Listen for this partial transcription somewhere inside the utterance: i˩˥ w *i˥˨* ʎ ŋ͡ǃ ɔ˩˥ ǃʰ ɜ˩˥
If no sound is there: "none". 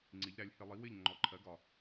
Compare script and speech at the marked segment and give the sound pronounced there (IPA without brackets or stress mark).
ɪ˥˨